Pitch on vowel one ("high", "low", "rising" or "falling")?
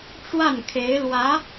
falling